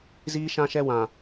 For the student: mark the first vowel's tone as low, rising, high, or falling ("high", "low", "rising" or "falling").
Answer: high